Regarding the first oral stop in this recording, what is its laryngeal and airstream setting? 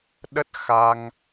implosive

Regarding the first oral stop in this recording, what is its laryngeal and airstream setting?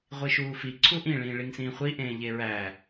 click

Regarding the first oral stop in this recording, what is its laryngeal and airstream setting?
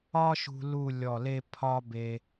aspirated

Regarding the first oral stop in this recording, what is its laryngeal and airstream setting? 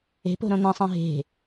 plain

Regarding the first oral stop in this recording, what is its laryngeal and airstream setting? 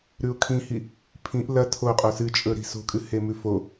aspirated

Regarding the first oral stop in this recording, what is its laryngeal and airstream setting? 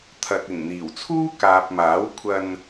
aspirated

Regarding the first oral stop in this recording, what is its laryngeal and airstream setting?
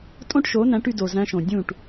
ejective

